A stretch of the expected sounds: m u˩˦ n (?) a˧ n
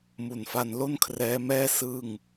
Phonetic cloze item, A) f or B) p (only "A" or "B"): A